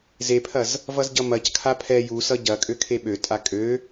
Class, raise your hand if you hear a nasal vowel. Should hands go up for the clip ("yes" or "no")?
no